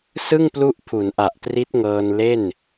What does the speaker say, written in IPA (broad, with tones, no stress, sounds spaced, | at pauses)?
s ɯ˥˩ ŋ p l u˦˥ ʔ pʰ u˩˦ n ʔ a˨˩ ʔ t r i˦˥ t̚ ŋ ɤː˧ n l e˥˩ n